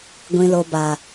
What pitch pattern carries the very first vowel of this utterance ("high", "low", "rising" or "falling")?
low